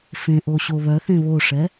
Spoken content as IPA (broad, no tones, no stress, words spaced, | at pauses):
fẽʔoɕo βœθẽ βoʂɛ